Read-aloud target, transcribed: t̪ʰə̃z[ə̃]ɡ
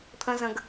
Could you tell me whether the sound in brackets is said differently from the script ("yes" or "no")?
no